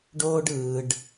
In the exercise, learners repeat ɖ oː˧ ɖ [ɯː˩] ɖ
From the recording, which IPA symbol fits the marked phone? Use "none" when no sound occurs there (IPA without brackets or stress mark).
ɯː˩